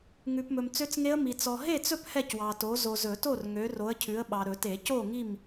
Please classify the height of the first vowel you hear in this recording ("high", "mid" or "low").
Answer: high